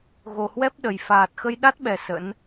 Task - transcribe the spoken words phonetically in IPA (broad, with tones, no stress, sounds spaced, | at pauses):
ɣ o˨˩ h w ɛ˦˥ p̚ ɗ ə˨˩ j f aː˨˩ t̚ x ə˧ j ɗ a˦˥ t̚ ɓ ɛ˨˩ s ə̰˧˥ n